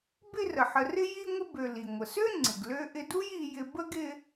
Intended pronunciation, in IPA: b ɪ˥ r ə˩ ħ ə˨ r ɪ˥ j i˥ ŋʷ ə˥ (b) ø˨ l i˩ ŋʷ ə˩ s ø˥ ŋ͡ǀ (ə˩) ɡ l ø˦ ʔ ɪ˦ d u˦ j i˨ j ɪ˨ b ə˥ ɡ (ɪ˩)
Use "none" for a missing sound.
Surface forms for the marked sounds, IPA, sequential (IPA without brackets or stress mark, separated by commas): b, ɪ˩, ɪ˦